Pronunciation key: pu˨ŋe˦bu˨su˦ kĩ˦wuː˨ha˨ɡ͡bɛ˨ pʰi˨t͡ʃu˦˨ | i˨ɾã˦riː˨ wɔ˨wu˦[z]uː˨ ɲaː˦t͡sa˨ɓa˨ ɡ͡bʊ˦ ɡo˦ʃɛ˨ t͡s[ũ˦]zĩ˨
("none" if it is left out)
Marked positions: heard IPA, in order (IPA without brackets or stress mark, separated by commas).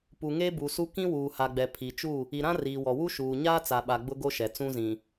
ʃ, ũ˦